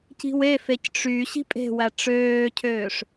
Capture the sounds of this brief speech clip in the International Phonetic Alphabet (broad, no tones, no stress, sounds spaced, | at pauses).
c i̤ w e f e c ʈ͡ʂ y ɕ i̤ pʼ e̤ w æ ʈ͡ʂ øː cʰ øː ʂ